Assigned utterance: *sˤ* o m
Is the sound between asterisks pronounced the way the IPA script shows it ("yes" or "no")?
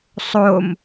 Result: yes